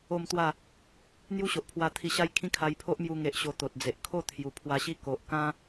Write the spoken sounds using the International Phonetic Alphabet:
o˥˧ m t̪ w a˥˧ | n̪ j u˦ ɕ o˨ ʔ pʰ w a˧ t̪ʰ i˧ ɕ a˦ j kʰ ĩ˦ kʰ a˧ j pʰ o˦ ʔ m j u˧ ŋ e˨ ʔ ɕ o˧ t̪ o˨ t̚ d͡z e˨ ʔ kʰ o˥˧ t̪ʰ j u˨˩ pʰ w a˧ ɕ i˦ k o˨ ʔ k ã˦

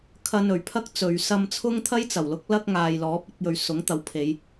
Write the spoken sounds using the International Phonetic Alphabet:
kʰ ɐ˧ n ɵ˨˩ ɥ pʰ ɐ˥ k̚ t͡s ɵ˨ ɥ s ɐ˧ m t͡sʰ ʊ˥ ŋ t̪ʰ ɐ˥ j t͡s ɐ˨˩ w l ʊ˥ k̚ l ɐ˥ k̚ ŋ aː˨ j l ɔː˨˥ p̚ ɐ˧ k̚ j ɵ˨ ɥ s ʊ˨˥ ŋ t̪ ɐ˨˥ w pʰ e˨˧ j

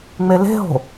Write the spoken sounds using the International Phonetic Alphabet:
ŋ͡m e l e̤ ɦ o̤

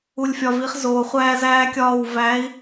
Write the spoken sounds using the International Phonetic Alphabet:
u˨ lʲ fʲ ɒ˨ v i˨˦ χ z oː˨ χʷ æː˦ z æː˦ kʲ ɒː˦˨ w v æ˨˦ i̯

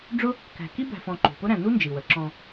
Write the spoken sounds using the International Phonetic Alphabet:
ɖ͡ʐ ʊ˥ | k æ̤˨ k i˥ b æ̤˨ f ɔ̃˨ ǃ ṳ˩ p ʊ˥ ɾ æ̃˨ n u˥ n d͡ʒ i˩ w ə˩ ǁ ɔ̃˨

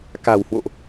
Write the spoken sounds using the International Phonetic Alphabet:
k a̤˨˩ w h w o̰˧˨ ʔ

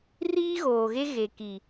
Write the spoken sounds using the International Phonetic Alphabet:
r iː˦ ɣ oː˨ ɣ e˦ ɣ e˨ k i˨

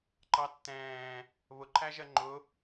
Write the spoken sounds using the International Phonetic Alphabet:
ǃ ɑ tː ɛ̃ː | β ʊ ǃʰ æ ʒ ɜ ŋ͡ǃ ʊ

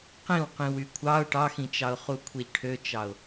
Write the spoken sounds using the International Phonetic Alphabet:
q ĩ w q ĩ w y kʷʰ ɑ ʊ̯ ʈ ɑ x ĩ t͡ʃ ɑ ʊ̯ χ u kʷʰ i ʎ ʈʰ ø t͡ʃ ɑ ʊ̯

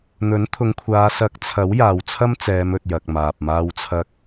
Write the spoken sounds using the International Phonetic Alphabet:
n̪ ɵ˨˥ n t̪ʰ ʊ˨˧ ŋ kʷʰ aː˨˧ s ɐ˨˥ k̚ t͡sʰ ɐ˨˥ w j aː˨ w t͡sʰ ɐ˥ m t͡s ɛː˨˧ m ɵ˨ t̚ j ɐ˨ k̚ m aː˨ p̚ m aː˧ w t͡sʰ ɐ˧ k̚

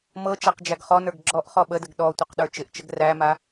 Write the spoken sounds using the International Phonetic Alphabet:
m ɤ t͡ʃ a q d͡ʒ æ ɡ χ ɔ n ə˞ ɡ ɡ͡ǁ ɔ ʔ χ ɔ ɓ ə d ə ɡ ɗ ɔ tʷ ə q ɗ ə˞ t͡ʃ ɪ ʔ t͡ʃ ə ɡ r æ m a

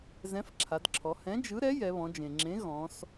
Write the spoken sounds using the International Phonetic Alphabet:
z ɛ̃˨˥ f ǁʰ a˩˧ d ǁʰ ɔ˩˧ h ɛ̃˨˥ d͡ʒ ɯ˨˥ ɾ ɛ˨˥ j ɛ˩˧ β ɔ̃˩˧ d͡ʒ ẽ˩ ŋ͡ǁ ẽ˨˥ ɣ ɔ̃˩˧ s

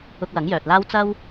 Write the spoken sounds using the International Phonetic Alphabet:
ʊ˧ k̚ w ɐ˨˥ ŋ j œː˨ t̚ l aː˥ w t͡s ɐ˥ w

